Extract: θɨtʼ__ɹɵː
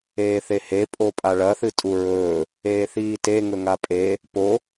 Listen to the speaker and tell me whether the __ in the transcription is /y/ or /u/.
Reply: u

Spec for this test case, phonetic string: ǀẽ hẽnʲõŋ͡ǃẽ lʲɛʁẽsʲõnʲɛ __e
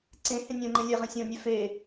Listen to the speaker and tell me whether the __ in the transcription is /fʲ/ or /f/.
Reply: f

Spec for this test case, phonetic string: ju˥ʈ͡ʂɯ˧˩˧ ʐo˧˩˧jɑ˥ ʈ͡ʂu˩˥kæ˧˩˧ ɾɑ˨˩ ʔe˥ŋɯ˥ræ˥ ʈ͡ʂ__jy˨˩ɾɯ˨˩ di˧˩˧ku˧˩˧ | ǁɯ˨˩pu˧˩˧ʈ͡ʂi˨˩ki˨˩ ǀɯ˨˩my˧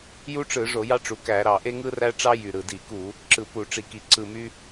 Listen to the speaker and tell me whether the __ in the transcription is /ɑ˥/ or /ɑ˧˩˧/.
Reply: ɑ˥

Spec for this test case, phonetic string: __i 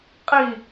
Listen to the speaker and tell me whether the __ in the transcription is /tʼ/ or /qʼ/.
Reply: qʼ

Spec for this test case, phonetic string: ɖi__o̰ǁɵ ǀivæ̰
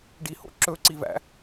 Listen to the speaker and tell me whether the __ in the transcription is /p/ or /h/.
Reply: h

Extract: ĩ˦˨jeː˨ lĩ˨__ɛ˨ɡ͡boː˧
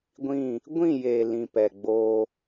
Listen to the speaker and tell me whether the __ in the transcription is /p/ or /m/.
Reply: p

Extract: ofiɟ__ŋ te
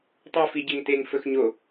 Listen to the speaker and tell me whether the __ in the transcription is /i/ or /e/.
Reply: e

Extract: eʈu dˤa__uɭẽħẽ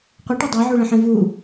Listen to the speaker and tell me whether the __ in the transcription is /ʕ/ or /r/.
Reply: ʕ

